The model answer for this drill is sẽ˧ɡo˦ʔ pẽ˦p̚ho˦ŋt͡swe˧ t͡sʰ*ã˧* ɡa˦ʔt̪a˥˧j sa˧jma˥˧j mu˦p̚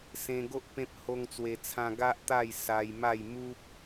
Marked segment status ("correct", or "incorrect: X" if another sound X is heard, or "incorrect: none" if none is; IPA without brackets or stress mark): correct